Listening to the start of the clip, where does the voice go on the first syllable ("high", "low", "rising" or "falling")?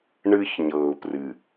high